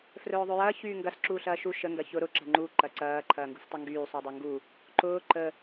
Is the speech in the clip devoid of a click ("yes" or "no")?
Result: no